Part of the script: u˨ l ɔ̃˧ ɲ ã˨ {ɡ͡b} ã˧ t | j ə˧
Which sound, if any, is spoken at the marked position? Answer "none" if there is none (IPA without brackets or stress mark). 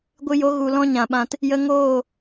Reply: ɓ